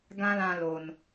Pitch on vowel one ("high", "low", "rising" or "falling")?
high